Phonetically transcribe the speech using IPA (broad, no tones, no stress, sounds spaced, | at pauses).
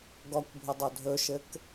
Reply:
ɡ ɔ kʷ bʱ ə dˤ o dʱ ɵ ʃ ɘ k